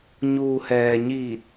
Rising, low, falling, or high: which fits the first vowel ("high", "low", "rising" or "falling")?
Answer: low